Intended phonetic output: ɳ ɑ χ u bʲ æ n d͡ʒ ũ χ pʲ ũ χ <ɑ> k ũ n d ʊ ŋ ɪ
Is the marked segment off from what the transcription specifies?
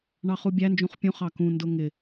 no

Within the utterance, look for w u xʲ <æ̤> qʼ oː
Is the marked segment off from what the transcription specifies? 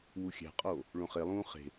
no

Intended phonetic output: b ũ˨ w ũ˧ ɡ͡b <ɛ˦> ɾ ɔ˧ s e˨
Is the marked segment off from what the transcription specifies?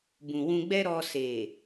no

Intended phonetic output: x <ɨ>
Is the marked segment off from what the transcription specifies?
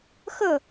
yes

